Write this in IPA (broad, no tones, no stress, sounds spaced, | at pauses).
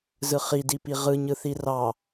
z ɯ χ i d i p i ʁ ɯ ɲ ɯ θ i r ɑ